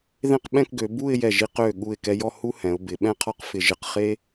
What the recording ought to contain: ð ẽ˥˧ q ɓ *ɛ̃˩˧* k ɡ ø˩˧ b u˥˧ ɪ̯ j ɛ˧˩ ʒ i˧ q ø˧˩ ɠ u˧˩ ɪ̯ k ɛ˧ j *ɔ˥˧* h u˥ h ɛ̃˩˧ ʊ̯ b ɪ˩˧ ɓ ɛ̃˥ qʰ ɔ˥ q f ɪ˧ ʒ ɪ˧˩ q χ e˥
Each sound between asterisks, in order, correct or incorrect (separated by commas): incorrect, correct